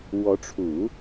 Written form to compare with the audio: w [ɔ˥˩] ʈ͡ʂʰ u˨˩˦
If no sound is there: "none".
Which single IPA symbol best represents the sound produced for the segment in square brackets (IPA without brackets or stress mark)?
ɔ˧˥